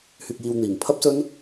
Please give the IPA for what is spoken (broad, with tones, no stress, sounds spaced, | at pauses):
h yː˧ k̚ j iː˧ w n̪ iː˨˩ ŋ pʰ ɐ˥ p̚ s ɵ˥ n